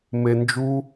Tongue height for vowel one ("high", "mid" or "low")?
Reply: mid